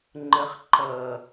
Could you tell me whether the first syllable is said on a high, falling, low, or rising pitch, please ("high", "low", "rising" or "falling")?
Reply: low